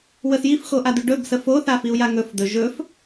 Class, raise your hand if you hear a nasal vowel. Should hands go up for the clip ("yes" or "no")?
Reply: no